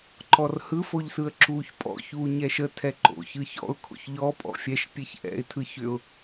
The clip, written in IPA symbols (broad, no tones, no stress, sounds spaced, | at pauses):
ǃ ɔ r h ɯ f o ʎ s ɯ ə̯ ǁ uː ç pʼ ɔ̰ ç uː ɲ ɛ ʃ ə tʰ ɛ ǃ o̰ ç ɯ ç ɔ̰ ʊ̯ kʰ o̰ ç ʎ ɔ pʼ ɔ̰ fʲ ɛ ʃ pʲ e ç ʔ ɛ̰ ɪ̯ tʰ ɯ ç ʏ ʊ̯